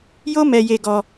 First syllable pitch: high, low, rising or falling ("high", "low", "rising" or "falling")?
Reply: high